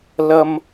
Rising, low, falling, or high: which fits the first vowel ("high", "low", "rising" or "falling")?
high